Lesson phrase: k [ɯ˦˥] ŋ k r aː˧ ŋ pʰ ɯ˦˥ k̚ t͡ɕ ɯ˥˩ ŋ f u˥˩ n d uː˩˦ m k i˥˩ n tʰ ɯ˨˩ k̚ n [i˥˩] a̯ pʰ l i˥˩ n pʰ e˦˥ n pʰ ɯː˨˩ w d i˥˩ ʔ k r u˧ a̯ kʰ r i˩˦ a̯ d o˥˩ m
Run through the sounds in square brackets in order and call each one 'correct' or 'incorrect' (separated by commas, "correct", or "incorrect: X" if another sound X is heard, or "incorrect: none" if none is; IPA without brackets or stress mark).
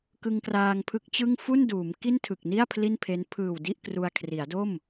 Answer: incorrect: ɯ˧, correct